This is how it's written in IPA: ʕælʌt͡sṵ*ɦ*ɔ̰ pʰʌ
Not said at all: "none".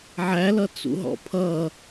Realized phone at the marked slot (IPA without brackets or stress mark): ɦ